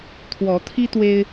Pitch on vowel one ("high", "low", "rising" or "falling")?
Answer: rising